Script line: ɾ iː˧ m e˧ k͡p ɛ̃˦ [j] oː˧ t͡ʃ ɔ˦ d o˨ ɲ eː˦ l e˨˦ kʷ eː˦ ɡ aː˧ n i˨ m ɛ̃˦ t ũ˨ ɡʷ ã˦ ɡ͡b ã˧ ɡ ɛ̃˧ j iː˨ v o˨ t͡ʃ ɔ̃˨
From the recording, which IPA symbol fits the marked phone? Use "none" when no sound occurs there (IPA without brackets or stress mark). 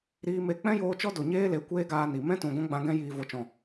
j